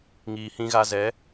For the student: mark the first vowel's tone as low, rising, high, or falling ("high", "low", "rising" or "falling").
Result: low